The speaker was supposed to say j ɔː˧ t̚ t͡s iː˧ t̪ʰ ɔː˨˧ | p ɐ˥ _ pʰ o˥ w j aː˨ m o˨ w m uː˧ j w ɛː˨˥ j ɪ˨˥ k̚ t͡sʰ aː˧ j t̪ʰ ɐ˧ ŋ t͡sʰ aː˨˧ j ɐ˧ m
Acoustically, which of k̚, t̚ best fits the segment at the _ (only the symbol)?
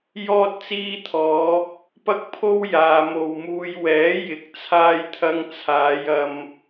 k̚